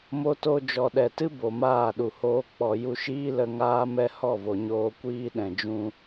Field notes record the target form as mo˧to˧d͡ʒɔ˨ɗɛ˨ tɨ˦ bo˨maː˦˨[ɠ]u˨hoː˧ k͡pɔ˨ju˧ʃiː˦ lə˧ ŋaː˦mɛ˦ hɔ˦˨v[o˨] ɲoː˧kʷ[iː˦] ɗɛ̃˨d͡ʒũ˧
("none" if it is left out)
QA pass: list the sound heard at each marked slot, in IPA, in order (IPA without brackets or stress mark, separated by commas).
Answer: ɗ, o˨, iː˦